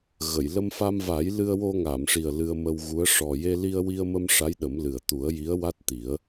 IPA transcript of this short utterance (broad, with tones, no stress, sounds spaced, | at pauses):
ɣ ə˨˩˨ j l ə˧ m f a˧ m v a˨˩˦ j l ɨ˧ ə̯ w o˧ ŋ a˨˩˨ m ʂ i˨˩ ə̯ l ɨ˧ ə̯ m ə˧ w ɣ u˧˥ ə̯ ʂ ɔ˨˩ j e˧ l i˧ ə̯ w i˧ ə̯ m ə˧ m ʂ a˧˥ j ɗ ə˨˩˦ m l ɨ˨˩ ə̯ t̪ u˨˩˦ ə̯ j i˧˥ ə̯ w a˦˥ t̚ t̪ i˨˩˦ ə̯